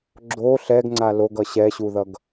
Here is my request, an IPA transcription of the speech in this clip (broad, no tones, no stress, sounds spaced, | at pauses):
ɡ͡ǁ o ɬ ɛ ɡ ŋ͡ǀ a l o ɡ ʌ ɕ ɛ ɕ u ð ʌ ɡ